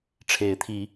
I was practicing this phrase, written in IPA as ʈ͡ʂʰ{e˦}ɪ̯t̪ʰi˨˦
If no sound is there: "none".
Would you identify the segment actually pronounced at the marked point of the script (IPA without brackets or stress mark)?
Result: e˨˦